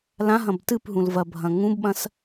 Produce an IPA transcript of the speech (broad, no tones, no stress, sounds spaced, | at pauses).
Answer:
l ã ɦ ɐ̃ b t ɨ p ɦ ũ l v ɐ bʱ ɐ̃ ŋ ũ b ɓ ɐ̃ s